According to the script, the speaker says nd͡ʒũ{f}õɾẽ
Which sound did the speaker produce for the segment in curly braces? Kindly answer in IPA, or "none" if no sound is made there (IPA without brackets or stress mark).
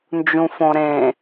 f